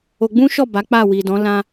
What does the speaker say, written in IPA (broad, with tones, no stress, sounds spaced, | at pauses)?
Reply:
o˧ ɡ͡b ũ˦ ʃ ɔ˦˨ b a˨˦ k͡p a˦˨ w i˨ d ɔ̃˨˦ l ã˦